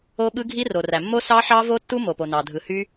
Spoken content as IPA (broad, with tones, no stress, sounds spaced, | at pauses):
o˦˥ ɓ ɯ˦˥ ɡʱ i˦˥ r o˩ r æ˩ mː o˦˥ s ɑ˦˥ ħ ɑ˦˥ v o˦˥ tː u˦˥ m o˩ p o˩ n ɑ˩ dʱ ɯ˩ h y˦˥